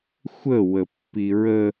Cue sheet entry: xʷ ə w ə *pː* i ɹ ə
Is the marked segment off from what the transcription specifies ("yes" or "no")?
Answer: no